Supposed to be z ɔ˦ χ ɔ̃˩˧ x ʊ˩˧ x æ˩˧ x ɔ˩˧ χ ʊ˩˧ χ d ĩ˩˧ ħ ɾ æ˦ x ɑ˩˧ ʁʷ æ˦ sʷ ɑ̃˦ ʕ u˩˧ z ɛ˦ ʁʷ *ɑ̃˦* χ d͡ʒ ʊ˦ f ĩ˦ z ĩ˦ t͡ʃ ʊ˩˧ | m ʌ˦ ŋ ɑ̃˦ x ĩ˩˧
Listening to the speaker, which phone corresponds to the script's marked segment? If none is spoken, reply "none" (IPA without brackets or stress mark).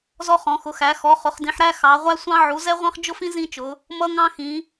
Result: ɑ̃˦